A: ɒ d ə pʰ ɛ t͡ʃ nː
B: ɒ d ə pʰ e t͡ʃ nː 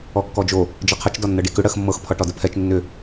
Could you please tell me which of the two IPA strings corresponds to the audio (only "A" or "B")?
A